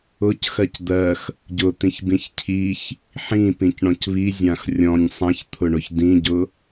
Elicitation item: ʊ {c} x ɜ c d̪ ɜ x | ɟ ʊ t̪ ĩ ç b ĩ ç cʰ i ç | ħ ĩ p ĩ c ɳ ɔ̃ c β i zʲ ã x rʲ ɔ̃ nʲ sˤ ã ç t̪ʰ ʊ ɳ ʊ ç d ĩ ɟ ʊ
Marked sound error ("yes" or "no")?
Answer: no